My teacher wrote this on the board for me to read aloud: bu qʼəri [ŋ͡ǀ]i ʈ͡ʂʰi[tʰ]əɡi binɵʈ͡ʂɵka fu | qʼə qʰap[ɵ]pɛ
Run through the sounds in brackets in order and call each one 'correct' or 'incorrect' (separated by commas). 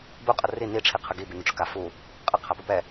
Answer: incorrect, incorrect, correct